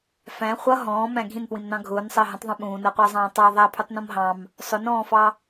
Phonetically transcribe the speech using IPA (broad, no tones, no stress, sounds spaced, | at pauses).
f æ̃ χʷ ʌ ɦ ɔ̃ː m æ̃ ɡʱ ĩ n p w ĩ m n ɑ̃ ɡʱ ʊː n sˤ əː ɦ ə̃ tˤ ðˤ ũ ɓ ũː n əː qʷ əː zˤ ɑ̃ː tˤ ɑ ðˤ æ pʰ u tˤ n ɔ̃ m ɦ ɑ̃ m | sˤ ʊ n ɔ̃ː f ɑ